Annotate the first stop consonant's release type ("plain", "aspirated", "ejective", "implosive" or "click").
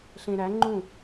click